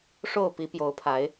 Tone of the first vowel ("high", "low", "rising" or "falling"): falling